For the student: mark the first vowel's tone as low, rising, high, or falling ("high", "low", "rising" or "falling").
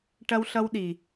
high